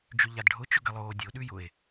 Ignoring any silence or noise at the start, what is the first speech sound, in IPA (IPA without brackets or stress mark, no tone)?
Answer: d͡ʒ